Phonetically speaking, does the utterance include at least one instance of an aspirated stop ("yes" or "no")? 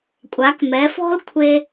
yes